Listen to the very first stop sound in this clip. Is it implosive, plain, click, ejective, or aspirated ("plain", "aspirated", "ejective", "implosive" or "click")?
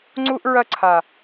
click